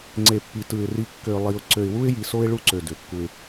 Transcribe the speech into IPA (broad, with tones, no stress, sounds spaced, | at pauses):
ŋ͡ǀ e˨ pː i˨ t ɯ˨ ɪ̯ r i˨ kː ø˨ lˠ i˨ ʊ̯ ǀ ø˨ ɪ̯ w u˦ ɪ̯ j i˨ s o˦ ɪ̯ ɭ u˦ ǀ ø˨ d ø˨ kː u˦ ɪ̯